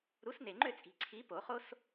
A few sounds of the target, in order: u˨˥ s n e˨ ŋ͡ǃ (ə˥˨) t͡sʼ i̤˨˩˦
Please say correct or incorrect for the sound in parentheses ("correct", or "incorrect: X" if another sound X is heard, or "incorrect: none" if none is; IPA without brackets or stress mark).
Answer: incorrect: ø˥˨